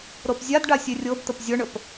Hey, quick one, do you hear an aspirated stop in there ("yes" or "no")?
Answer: no